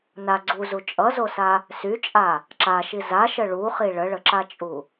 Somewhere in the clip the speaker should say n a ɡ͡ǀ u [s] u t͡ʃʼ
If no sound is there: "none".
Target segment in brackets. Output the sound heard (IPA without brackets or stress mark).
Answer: z